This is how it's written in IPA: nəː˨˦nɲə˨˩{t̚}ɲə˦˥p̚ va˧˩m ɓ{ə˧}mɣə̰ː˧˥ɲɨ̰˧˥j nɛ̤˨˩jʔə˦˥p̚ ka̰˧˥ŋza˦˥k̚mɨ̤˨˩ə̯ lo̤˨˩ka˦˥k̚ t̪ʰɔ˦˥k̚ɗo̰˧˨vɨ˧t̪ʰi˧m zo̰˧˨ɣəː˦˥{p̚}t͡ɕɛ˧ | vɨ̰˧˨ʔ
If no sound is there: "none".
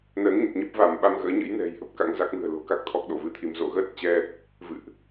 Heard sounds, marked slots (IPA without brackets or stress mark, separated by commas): t̚, a˧, t̚